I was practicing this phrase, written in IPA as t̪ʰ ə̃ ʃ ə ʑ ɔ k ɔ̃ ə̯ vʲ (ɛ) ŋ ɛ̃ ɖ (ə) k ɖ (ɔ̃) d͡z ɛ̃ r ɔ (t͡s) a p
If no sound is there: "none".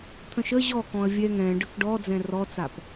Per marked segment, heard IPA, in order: ɛ, ə, ɔ, t͡s

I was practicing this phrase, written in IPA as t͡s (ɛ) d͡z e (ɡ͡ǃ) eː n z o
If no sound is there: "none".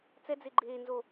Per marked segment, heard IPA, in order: ɛ, ɡ͡ǃ

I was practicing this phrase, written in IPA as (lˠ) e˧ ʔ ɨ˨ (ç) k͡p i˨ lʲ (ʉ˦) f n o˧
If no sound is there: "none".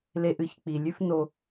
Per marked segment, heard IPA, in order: l, ç, ʉ˦

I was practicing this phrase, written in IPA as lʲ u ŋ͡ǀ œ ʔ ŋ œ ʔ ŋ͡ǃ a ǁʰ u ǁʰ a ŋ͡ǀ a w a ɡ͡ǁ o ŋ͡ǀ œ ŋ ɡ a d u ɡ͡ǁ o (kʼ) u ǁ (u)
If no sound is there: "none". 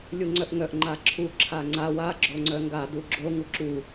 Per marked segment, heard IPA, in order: ŋ, u

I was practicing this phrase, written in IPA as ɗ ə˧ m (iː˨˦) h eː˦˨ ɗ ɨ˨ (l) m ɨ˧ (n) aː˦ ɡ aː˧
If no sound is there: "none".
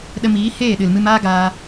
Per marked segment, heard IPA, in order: iː˨˦, l, m

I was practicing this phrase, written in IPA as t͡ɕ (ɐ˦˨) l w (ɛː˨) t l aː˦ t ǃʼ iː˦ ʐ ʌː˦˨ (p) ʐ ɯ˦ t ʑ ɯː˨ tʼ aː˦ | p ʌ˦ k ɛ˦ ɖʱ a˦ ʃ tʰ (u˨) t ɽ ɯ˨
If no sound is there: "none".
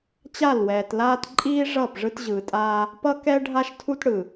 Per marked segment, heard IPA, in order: a˦˨, ɛː˨, p, u˦

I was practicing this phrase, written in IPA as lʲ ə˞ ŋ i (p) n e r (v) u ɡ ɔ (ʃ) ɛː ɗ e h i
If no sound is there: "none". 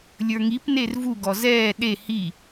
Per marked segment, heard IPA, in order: p, v, z

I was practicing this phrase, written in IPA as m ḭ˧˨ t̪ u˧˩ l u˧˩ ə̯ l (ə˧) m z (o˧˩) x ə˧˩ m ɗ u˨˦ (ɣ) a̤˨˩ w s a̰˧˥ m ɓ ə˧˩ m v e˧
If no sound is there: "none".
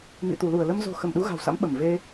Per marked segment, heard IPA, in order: ə˧, o̤˨˩, ɣ

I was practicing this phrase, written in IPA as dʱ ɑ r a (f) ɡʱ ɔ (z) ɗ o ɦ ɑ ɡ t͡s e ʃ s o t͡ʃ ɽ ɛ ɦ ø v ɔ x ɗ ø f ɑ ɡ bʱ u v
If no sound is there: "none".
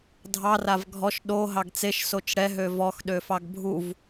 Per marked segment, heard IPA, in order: v, ʃ

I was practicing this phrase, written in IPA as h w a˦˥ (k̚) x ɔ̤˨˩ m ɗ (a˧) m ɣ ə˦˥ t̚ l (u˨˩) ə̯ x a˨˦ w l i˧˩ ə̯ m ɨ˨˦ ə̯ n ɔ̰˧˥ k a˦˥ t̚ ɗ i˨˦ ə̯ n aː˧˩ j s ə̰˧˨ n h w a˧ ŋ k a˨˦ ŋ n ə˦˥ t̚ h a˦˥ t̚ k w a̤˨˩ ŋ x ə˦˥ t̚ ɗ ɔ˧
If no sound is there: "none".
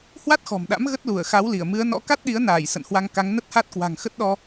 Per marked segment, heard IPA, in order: t̚, a̰˧˥, u˧˩

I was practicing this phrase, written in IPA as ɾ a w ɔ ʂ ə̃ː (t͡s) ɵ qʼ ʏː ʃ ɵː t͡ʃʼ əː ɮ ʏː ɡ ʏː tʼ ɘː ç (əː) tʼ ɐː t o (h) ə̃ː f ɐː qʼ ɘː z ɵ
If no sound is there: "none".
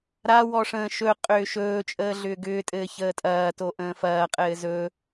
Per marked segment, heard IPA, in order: ʃ, əː, ʔ

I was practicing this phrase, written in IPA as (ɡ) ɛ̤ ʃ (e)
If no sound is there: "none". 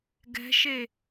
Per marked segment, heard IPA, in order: ɡ, e

